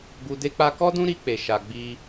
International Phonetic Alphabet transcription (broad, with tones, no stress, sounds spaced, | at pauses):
ɡ u˧ d e˦ k͡p a˦ k ɔ˦ d ũ˦ ɾ i˧ k͡p e˨ ʃ a˨ ɡ͡b i˧